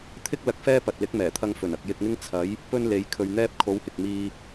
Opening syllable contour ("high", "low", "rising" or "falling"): high